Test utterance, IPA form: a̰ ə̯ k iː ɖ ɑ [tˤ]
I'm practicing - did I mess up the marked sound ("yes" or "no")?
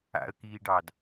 yes